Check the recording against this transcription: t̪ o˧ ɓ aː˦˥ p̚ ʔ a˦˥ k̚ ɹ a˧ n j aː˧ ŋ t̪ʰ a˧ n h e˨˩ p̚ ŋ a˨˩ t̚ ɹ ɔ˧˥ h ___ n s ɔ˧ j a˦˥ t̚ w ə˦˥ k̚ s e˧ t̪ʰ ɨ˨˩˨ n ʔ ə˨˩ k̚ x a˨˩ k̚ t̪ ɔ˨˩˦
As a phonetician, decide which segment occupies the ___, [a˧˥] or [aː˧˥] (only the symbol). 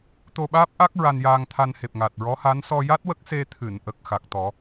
a˧˥